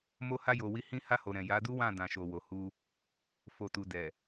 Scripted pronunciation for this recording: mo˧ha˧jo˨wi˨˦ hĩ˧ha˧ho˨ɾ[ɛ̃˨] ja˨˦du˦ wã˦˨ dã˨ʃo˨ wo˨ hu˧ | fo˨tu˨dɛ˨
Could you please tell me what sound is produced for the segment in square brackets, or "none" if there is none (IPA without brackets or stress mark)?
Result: ɛ̃˨